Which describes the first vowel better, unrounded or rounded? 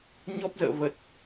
rounded